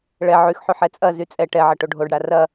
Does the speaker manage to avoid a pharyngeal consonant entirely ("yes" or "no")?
no